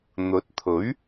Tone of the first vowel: rising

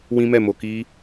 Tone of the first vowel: high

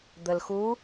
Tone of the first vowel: low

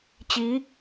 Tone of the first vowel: rising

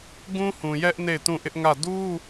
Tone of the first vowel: high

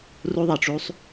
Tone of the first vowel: high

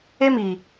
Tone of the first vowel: high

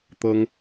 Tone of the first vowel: high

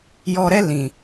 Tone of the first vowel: low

